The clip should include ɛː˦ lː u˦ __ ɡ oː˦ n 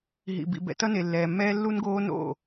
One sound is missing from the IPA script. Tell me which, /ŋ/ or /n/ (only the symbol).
n